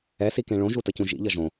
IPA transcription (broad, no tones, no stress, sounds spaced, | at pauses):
ɛ s i k ẽ ɭ õ ʒ u t ʌ c ũ ʒ ḭ ʎ ʌ ʒ õ